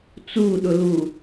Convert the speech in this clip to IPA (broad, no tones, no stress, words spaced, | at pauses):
t͡suɗʊlu